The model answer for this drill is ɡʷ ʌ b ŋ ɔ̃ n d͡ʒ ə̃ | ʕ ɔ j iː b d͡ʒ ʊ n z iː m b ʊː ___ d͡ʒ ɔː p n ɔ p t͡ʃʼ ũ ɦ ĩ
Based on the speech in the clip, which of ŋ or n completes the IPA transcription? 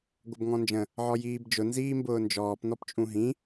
n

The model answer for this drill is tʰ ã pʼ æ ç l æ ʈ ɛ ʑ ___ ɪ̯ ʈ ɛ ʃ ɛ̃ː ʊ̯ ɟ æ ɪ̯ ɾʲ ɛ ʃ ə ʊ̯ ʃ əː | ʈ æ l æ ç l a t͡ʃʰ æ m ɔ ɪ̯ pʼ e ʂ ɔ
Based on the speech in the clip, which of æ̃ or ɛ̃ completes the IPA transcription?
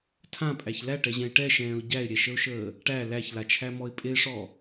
ɛ̃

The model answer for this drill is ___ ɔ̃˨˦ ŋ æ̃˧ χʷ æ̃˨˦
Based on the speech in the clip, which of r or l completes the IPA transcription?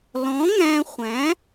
l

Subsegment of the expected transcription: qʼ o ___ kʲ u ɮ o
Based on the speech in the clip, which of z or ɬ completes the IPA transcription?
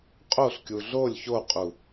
ɬ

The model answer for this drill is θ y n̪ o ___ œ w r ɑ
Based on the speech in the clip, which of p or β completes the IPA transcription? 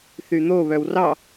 β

